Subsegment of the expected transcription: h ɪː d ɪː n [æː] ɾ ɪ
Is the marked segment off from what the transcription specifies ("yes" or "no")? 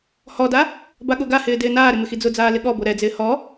yes